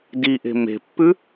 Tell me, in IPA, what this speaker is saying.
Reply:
d i ʔ e̤ m e̤ pː ʉ

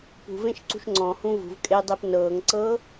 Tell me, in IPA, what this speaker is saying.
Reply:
p ṳ v ẽ ʃ ǀ ṳ ʃ ŋ͡ǀ ɔ̃ h ũ v ṳ v kʼ e dˤ e p n ɤː ŋ ǀ ɤː

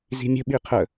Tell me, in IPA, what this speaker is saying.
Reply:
z i̤ mʲ ə̤ ɓ i qʰ ə

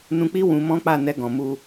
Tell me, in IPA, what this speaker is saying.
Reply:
n ũ˧ k͡p i˦ w ũ˧ m ɔ̃˦ k͡p a˦˨ n ɛ˧ ɡ ɔ̃˨ m u˧

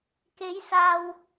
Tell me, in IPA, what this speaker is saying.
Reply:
k e˨˧ j s aː˨ w

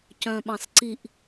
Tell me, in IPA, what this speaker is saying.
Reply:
c œ̃ ɓ ɑ̃ s ǀ i ʔ

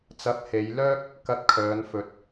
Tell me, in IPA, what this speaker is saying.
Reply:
t͡s ɐ˨˥ p̚ h e˨˧ j l œː˥ k̚ | k ɐ˧ t̚ kʰ œː˨˧ n f ɵ˧ t̚

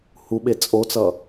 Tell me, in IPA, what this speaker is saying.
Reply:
h u ɓ e t͡sʼ o t͡s ʌ

